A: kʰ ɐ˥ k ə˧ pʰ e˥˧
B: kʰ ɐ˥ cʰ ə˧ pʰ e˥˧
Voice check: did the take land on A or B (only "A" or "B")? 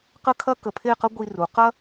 A